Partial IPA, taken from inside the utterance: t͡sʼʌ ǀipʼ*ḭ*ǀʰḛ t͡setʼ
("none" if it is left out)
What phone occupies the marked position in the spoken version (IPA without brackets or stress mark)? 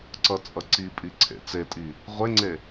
i